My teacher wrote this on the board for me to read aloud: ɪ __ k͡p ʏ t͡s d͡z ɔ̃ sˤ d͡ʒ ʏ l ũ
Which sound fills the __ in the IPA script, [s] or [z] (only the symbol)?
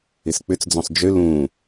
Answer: s